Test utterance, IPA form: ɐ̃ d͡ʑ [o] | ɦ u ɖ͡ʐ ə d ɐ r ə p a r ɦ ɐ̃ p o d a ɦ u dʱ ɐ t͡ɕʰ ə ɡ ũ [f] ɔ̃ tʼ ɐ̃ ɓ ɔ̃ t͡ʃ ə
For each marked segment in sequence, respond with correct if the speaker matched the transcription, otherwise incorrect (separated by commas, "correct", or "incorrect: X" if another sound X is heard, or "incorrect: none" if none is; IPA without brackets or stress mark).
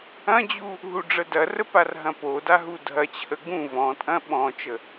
incorrect: u, incorrect: v